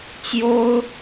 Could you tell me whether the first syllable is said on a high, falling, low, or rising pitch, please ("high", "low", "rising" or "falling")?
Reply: high